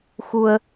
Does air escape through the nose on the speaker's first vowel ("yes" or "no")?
no